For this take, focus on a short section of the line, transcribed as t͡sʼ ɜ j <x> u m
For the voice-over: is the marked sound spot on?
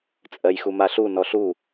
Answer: yes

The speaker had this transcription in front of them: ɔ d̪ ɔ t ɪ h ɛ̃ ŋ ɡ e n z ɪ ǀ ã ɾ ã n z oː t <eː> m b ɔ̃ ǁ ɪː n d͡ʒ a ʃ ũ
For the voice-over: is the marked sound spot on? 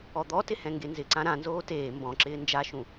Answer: yes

